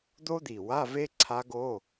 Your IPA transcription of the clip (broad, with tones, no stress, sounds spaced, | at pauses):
d̪ o˦˥ d̪ i˨˩ w a˧˥˧ v e˦˥ ǀʰ a˦˥ ɡ o˧˥˧